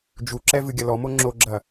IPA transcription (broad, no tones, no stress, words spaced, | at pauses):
d͡ʒuǁɛ vɨɡʲɐlɔmo ŋ͡ǁoɡ͡ǁɐ